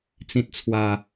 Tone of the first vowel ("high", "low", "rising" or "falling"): high